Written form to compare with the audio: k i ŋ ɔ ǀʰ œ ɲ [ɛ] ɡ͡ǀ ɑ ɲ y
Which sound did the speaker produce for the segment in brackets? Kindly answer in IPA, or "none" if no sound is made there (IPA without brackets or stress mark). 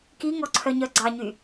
œ